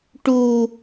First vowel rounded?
yes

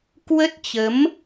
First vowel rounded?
no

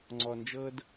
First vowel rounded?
yes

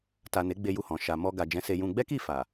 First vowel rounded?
no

